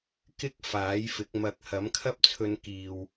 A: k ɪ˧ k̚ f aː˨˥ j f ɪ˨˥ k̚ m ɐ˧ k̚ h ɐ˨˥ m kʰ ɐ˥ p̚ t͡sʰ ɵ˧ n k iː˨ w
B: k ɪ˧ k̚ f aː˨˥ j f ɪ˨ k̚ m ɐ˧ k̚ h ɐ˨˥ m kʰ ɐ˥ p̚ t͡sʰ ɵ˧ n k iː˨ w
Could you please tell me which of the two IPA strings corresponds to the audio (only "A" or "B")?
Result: A